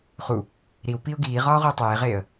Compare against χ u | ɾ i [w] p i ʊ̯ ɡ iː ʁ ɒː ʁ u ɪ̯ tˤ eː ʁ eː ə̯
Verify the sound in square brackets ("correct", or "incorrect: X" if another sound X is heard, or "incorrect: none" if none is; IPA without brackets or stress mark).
correct